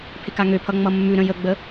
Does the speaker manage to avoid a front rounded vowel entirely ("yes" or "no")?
no